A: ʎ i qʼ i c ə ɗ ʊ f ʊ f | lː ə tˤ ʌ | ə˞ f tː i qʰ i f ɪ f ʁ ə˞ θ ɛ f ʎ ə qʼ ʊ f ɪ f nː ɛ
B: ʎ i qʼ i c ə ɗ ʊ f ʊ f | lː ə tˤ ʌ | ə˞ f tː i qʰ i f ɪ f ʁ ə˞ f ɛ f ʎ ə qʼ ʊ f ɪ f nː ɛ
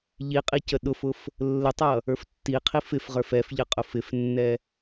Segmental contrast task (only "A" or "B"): B